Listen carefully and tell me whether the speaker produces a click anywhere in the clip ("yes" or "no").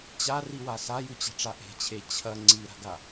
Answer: yes